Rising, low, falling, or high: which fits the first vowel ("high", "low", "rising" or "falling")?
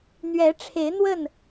rising